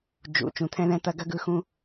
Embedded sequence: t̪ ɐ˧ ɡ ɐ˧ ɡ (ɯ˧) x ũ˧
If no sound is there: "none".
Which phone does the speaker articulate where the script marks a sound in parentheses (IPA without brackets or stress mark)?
ɯ˧